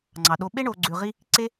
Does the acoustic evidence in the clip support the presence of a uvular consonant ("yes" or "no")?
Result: yes